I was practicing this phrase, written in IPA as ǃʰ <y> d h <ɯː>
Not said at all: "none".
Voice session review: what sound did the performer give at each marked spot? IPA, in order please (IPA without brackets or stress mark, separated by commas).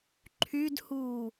y, uː